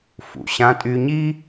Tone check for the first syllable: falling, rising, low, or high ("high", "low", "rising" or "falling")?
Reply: low